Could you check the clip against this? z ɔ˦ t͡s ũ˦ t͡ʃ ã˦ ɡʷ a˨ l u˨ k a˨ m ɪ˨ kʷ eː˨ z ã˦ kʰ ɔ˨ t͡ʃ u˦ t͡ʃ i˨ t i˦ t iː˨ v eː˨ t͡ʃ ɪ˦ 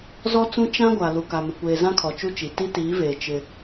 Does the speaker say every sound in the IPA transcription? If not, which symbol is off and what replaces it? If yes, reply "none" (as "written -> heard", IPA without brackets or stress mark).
iː˨ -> iː˨˦